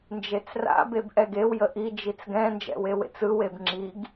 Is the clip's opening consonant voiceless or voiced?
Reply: voiced